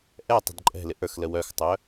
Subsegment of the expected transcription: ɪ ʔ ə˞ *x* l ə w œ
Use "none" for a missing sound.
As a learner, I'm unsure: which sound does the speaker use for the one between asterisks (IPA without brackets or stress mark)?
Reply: x